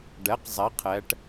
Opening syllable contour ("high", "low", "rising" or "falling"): rising